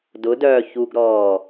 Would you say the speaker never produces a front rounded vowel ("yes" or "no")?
no